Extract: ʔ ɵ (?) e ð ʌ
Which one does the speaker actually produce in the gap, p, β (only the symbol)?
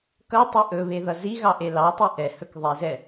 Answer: β